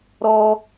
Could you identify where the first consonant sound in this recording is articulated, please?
alveolar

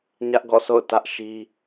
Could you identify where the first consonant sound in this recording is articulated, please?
palatal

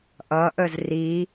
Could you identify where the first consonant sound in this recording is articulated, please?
glottal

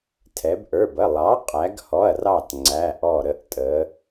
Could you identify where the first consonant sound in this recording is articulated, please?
alveolar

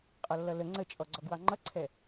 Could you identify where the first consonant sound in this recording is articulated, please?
uvular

